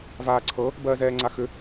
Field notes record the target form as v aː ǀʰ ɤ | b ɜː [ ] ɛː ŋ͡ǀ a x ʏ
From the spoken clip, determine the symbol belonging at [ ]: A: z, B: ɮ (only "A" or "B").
A